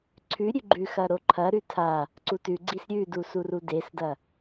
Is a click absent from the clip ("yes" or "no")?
no